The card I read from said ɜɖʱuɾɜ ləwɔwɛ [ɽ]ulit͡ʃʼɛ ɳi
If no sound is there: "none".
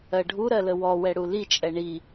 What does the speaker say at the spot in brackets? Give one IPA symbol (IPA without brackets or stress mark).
ɽ